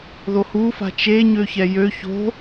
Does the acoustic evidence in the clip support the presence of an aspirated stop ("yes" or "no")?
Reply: no